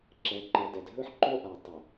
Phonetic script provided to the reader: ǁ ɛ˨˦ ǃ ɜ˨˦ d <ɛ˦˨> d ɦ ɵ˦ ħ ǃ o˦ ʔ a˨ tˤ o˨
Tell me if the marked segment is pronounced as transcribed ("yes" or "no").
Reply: no